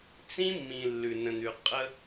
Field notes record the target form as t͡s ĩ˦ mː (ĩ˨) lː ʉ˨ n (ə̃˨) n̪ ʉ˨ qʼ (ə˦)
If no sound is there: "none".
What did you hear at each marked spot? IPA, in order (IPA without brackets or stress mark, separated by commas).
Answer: ĩ˨, ə̃˨, ə˦